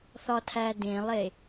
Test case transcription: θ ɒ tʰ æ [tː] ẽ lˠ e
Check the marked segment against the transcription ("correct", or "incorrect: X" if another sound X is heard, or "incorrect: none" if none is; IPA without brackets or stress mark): incorrect: d